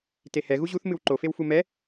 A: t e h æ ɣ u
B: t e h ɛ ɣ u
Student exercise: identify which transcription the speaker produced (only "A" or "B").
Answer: B